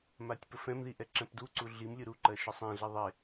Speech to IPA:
m a tʲ p ə f ɛ̃ m ð i ʔ ɛ ǁ ɛ̃ p d u ǀ u ɮ i m lʲ ɯ ɾ u ǃ ɜ ʃ ɯ sˤ ɛ̃ ɮ i ðˤ e

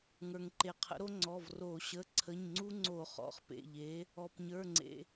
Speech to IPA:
ŋ ə˞˩ ŋ ǃ e˩ qʰ ə̰˩˥ ɾ o˦ ŋ͡ǀ ɔ˩˧˩ v r o˧˩˧ ɕ ə˩˧˩ ǀʰ ə˩˧˩ ɲ ŋ͡ǀ u˦ ŋ͡ǀ o˧˩˧ χ ɔ̰˩˧˩ χ p ḛ˩˧˩ ʎ e˩˥ | ɔ˩ p ɲ ə˞˩˧˩ ŋ͡ǀ ḛ˩

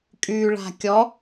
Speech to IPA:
kʼ y ɭ a̤ kʲ ɔ

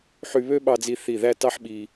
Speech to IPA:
ħ y˧ β ø˥ ɓ ɑ˧ d͡z i˧ θ i˧˩ ð æ˥˧ t ɑ˥ ħ ɓ i˧

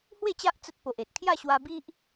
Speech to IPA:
h w e˥˧ t͡ɕ a˦ ʔ t͡s ə˦ t̚ p o˨ ʔ e˨ t̚ kʰ j a˥˧ ɕ w a˧ b i˦ ʔ

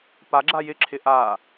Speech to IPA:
p a ɡ͡ǁ a j ɪ ǁʰ ɪ ʔ a

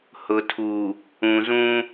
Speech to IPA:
h ʊ˨ tʰ u˨ | ũ˨ z ũ˦

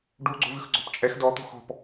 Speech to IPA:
ɖ u ɡ͡ǀ o̤ v ʉ x ɡ͡ǀ ɔ̤ p t͡ʃʼ ɛ x d ɔ t̪ o̤ x ɔ̤ p

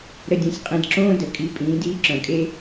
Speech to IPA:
ɾ ə˧ dʲ õ˧ sʲ qʼ ĩ˧ d ǁ õː˦ d ə˨ kʼ i˨˦ pʼ ĩː˨˦ d iː˦ ǁ œ̃˨ kʼ e˦

